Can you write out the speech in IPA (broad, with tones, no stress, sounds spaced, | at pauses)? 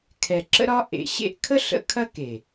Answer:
kʰ ɛ˨ ǁ ə̰˦ ɾ ɒ˦ ʔ ḛ˨ ɕ ḛ˧ ʔ kʰ ə˦ ɬ ə̰˨ kʰ ɐ˦ k e˨